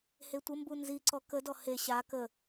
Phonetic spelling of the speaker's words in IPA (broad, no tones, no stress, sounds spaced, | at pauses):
h e tʷ ə m b u n z i ǀ ɔ k ə d ɔ h e ɕ a k ə